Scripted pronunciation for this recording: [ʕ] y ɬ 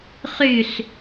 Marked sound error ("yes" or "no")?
yes